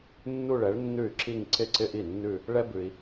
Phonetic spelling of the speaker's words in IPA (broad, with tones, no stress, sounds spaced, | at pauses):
nː u˥˧ ɭ ɛ˨˥ ɭ nː ʉ˥˩ y̯ ǁ i˥˧ ŋ ǀ ɪ˥˧ ǀ ɪ˥ ʔ i˥˩ nː ʉ˥˧ | ɭ ɛ˥ b ʉ˨ i̯